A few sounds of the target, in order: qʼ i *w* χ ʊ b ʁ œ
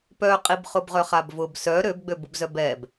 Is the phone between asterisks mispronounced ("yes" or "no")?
yes